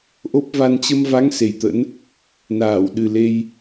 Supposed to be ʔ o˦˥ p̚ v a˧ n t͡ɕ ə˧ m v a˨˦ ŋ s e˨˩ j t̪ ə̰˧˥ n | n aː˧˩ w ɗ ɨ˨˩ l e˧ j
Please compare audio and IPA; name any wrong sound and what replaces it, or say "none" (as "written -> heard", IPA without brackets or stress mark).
none